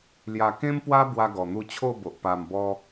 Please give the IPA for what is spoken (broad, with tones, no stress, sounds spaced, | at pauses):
l j a˨˩ k ẽ˦ m p w a˦ b w a˧ ɡ ɔ˨˩ n̪ u˧ t͡ɕʰ o˥˧ b o˨ ʔ p a˨˩ m b ɔ˧